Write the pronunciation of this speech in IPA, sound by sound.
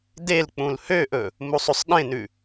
d e l k͡p ũ l h ø ʔ ɵ | m u sˤ ʉ sˤ ɗ ẽ n ʉ

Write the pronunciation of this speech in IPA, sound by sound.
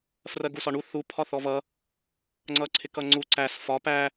f r ɜ ɡ u s ɒ ɳ u θ u pʰ ɒ θ ɔ v ʌ | ŋ͡ǀ ʌ ǀʰ ɪ k ʌ ŋ͡ǀ u ǀ æ s f ɒ p æ

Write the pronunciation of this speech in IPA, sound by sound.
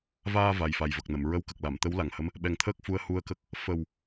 v aː˧ v a˨˩ j f a˨˩ j v ə˨˩ k̚ n ə˨˩˨ m ɹ ə˧˥ w k ə˨˩ k̚ l a˨˩˨ m t̪ ə˧˥ w l a˨˩ ŋ h ə˧˥ m | ɓ ɛ˨˩ ŋ t̪ʰ əː˦˥ k̚ f u˧ ə̯ h u˧ ə̯ k ə˦˥ k̚ | f ə˨˩ w

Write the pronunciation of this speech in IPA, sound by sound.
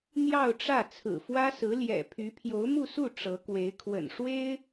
n̪ j ɑ˥˧ ʊ̯ ʈ͡ʂ ä˥˩ t͡sʰ ɹ̩˨˩ f w ä˥ s ɹ̩˧˥ l j ɛ̰˨˩ pʰ y˧˥ pʰ j o˧˥ ʊ̯ m u˥˧ s u˥˩ ʈ͡ʂ ɤ˧˥ k w e˧˥ ɪ̯ kʰ w ə̰˨˩ n ʂ w e˥ ɪ̯

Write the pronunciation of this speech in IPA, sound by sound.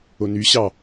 o n y ɕ ɑ

